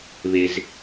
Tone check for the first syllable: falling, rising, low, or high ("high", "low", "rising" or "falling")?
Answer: low